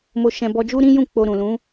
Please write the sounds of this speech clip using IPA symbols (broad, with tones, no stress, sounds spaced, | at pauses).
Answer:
m o˧ ʃ ɛ̃˧ b ɔ˧ d͡ʒ u˦ ɾ ĩ˦ j ũ˦˨ k͡p o˧ ɾ ũ˨ l ũ˨˦